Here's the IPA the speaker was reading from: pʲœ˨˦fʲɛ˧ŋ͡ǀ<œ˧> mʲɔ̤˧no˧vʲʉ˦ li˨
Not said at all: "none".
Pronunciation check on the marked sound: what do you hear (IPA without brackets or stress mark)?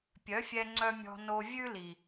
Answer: œ˧